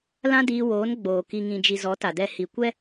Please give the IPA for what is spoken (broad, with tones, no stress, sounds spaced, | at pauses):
l ã˦ d iː˧ w oː˨˦ n ɡ͡b oː˨ k i˨ ŋ ĩ˨ d͡ʒ i˨ z ɔ˨˦ t a˨ d ɛ˧ h i˨ kʷ ɛ˦